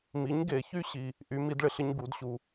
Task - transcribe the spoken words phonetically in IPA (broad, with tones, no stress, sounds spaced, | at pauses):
m i˨˥ ɲ ɡ e˨˩˦ ç y˥ ɕ i˨ | ʔ y˨˥ m i˨˥ d ɭ ɪ˨ ɬ ɪ˥ ɲ ɡ u˨˩˦ d ɕ u˨